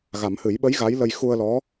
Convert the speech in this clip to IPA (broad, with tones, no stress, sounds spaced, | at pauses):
ɣ a˨˩˦ m h ɨ˨˩˦ j ɓ ə˧˥ j ɣ a˧˥ j l ə˧ j x u˧ ə̯ l ɔ˧˥